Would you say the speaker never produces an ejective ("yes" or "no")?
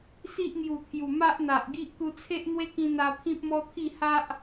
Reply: yes